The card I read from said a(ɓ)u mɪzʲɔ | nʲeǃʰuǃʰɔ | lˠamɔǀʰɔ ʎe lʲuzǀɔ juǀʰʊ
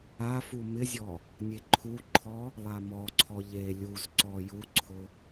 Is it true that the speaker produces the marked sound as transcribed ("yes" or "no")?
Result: no